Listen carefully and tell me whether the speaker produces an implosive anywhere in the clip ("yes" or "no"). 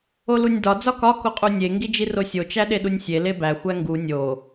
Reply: yes